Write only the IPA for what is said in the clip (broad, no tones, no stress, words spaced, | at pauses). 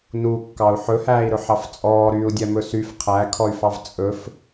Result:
nu kːɑu̯ħɵhæːi̯ɾɵ ħɑft͡sʼɔː ɾyːu̯dʲɛmɵsyf qʰækʰɔy̯fɑv t͡sʼɵf